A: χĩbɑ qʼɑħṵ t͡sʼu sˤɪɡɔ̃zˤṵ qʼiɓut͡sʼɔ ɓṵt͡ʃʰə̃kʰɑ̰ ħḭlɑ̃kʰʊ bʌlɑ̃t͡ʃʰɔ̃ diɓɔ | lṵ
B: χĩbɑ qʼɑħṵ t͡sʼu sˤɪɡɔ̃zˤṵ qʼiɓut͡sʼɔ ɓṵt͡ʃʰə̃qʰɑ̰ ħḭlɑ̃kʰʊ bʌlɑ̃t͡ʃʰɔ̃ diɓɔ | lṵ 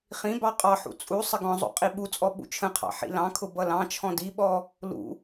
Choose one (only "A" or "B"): B